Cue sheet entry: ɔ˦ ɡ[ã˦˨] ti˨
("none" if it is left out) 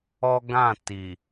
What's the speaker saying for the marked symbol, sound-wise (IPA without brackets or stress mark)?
ã˦˨